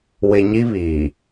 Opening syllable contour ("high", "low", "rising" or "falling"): low